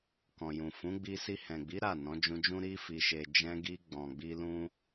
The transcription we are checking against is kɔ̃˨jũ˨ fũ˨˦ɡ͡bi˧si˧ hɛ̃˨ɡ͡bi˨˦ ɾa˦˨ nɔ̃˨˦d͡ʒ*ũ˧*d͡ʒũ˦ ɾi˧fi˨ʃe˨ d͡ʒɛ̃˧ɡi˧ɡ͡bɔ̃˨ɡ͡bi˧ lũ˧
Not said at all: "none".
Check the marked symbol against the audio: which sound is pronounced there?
ũ˧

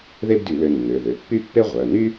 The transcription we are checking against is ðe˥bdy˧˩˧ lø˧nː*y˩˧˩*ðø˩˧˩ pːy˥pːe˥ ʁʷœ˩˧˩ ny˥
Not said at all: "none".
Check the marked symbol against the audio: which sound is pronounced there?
ø˩˧˩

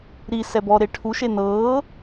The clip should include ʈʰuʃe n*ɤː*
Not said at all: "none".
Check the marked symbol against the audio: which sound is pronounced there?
ɤː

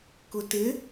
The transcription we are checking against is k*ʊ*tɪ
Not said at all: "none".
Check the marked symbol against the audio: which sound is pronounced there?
ʊ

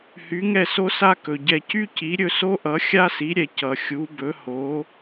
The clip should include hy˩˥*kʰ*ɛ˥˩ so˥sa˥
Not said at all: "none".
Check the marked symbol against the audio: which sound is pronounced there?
ŋ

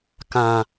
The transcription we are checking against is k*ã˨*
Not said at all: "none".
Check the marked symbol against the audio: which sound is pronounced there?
ã˨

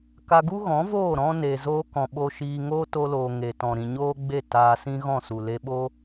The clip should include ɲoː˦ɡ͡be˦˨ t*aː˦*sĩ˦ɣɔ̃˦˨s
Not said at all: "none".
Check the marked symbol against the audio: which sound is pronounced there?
aː˧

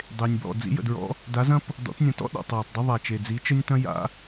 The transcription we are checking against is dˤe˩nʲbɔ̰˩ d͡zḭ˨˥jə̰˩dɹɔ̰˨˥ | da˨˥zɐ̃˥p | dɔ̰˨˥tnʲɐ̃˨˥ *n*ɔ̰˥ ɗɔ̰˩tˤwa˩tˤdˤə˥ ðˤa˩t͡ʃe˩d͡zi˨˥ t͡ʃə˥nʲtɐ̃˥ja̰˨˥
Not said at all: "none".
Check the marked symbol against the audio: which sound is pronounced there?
t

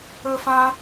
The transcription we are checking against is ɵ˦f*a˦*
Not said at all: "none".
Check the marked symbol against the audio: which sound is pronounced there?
ã˦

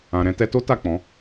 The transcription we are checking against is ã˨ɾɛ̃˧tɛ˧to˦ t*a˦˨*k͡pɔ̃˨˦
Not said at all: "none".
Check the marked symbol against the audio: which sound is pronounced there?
a˦˨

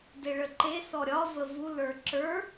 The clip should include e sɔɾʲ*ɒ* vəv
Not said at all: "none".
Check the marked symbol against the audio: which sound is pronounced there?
ɒ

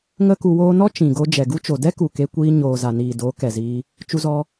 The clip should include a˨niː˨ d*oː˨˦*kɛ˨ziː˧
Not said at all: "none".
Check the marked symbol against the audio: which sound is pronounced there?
oː˨˦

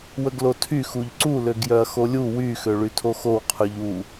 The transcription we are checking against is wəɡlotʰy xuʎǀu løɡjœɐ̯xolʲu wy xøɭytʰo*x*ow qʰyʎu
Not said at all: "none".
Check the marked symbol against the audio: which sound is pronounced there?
x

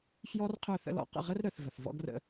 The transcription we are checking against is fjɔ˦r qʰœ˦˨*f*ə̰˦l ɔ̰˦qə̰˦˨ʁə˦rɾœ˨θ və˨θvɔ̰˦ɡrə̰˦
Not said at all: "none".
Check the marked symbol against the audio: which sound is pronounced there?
θ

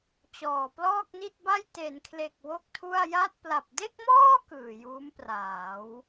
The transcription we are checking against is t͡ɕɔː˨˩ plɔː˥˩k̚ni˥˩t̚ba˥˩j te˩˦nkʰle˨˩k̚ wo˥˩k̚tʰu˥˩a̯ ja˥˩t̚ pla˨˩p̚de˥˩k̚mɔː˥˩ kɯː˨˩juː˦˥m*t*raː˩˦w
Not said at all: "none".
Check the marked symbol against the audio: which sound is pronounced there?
p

